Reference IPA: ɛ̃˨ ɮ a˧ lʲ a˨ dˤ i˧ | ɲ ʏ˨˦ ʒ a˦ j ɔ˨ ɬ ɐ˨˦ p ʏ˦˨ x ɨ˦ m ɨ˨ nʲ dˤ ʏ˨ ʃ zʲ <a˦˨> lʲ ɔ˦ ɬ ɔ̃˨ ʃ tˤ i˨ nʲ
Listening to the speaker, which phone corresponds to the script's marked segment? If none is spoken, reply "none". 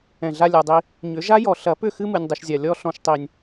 a˨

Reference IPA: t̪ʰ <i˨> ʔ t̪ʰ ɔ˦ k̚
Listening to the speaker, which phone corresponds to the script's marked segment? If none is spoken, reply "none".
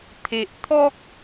e˨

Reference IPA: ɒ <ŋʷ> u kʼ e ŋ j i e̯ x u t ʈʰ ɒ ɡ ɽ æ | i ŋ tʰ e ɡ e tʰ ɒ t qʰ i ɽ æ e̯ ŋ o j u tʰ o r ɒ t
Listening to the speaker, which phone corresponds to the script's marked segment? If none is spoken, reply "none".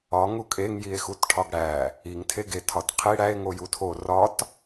ŋ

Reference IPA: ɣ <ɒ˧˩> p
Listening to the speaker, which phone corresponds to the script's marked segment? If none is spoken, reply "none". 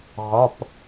ɒ˩˧˩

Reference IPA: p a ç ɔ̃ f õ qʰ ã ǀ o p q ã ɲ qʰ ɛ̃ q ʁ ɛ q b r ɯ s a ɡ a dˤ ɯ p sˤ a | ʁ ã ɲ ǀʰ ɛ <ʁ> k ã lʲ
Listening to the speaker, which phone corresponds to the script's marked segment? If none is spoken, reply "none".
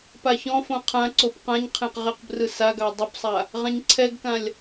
ɡ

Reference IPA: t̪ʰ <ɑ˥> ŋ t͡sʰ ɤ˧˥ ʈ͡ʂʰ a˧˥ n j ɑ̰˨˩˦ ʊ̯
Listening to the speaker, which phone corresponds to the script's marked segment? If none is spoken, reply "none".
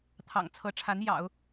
ɑ̰˨˩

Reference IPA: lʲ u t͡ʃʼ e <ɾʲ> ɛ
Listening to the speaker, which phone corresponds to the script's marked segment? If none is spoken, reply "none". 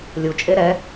ɾ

